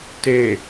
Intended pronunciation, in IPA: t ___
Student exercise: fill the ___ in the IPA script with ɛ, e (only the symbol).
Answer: e